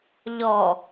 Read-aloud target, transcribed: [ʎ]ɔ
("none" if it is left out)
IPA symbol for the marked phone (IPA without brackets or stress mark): ʎ